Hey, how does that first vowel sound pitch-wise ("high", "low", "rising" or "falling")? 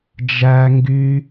high